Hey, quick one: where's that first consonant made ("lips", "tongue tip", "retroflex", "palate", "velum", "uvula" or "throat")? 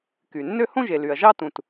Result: velum